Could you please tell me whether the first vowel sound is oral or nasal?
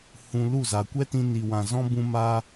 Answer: nasal